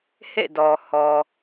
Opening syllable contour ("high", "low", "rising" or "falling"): falling